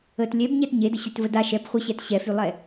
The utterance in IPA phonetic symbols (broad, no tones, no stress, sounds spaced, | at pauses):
ə t lʲ ɛ b ɲ ɛ t ɲ e d ə ɕ y t v ə d a ʃ ɛ b χʷ ə ɕ ɛ t ɕ ɛ f y lˠ ɛ